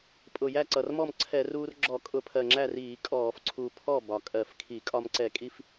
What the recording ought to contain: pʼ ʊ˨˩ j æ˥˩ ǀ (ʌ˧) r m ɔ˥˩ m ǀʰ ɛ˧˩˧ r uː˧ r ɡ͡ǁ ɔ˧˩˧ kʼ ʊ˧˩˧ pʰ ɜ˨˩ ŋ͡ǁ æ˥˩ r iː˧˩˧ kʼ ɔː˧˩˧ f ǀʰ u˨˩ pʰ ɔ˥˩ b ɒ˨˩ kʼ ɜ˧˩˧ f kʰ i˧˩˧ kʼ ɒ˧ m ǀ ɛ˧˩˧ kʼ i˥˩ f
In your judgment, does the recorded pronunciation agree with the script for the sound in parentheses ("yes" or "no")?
no